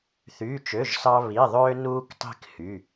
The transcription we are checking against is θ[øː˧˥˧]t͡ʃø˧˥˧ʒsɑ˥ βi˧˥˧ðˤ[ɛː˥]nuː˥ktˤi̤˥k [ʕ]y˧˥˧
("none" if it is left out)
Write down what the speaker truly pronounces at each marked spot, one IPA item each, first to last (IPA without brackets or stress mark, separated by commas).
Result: yː˧˥˧, øː˥, h